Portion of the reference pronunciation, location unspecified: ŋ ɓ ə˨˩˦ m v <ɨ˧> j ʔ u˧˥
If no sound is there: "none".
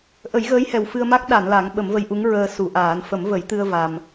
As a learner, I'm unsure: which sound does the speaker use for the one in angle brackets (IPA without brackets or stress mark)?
ə˧